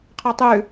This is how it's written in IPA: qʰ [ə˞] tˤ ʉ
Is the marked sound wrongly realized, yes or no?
no